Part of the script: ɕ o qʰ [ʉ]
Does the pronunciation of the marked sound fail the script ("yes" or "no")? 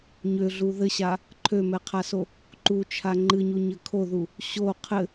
yes